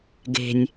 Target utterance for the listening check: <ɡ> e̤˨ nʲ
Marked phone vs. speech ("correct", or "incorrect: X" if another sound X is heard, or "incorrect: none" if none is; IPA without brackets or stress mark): correct